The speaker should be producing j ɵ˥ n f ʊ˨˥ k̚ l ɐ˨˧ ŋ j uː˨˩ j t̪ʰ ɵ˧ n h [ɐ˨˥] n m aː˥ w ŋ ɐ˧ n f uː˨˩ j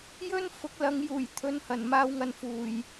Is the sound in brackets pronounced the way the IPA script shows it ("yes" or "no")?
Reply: no